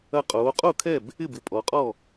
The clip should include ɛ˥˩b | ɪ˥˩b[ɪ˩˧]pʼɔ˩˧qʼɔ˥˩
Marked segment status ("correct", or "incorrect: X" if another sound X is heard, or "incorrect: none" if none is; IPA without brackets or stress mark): correct